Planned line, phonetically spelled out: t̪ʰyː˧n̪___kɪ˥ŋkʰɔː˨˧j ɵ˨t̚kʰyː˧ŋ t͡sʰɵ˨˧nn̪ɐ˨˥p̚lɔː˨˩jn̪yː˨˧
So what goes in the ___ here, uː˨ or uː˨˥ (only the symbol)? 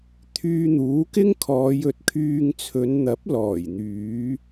uː˨˥